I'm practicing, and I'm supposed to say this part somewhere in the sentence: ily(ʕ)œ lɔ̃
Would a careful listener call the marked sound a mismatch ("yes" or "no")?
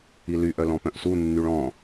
yes